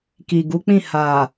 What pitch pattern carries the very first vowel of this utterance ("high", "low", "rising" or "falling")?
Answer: low